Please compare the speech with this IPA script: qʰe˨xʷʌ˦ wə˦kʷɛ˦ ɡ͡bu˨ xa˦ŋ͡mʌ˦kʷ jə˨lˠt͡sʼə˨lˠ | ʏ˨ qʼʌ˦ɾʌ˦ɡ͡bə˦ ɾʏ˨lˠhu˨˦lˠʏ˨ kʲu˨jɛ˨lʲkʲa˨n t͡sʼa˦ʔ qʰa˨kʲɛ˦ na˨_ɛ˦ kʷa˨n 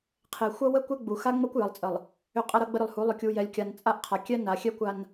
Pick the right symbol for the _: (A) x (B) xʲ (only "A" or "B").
B